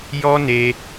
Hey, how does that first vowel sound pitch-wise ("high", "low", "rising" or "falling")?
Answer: high